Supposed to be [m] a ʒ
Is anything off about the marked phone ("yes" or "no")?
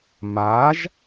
no